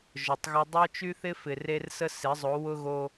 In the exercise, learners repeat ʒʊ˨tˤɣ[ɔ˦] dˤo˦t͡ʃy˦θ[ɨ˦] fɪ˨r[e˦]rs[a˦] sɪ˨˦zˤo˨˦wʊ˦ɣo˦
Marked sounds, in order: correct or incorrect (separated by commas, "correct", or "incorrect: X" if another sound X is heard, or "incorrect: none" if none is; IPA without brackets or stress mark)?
incorrect: ə˦, incorrect: ɪ˦, correct, incorrect: ə˦